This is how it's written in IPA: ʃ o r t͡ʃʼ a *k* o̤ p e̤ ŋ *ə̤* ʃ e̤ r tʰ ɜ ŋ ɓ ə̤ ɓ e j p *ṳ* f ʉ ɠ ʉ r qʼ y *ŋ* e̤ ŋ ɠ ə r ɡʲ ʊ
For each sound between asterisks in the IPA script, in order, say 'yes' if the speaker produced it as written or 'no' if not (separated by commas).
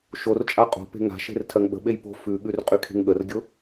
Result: no, no, no, no